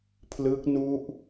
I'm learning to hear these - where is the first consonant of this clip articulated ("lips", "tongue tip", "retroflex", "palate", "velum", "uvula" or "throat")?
lips